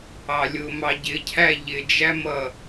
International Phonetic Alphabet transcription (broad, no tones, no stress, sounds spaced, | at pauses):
ɑ lʲ ʊ m ɑ ɟ ɪ cʰ æ ʎ ɪ d͡ʒ æ m ʌ